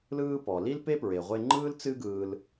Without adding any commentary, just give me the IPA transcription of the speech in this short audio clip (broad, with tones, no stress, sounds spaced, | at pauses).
l ɯː˧ p ɔ˩ l i˥ l p e˥ p ɹ e˩ ʁʷ e˧ ŋ͡ǃ ɯː˥ l t͡s ɨ˥ ɡ ɯː˧ l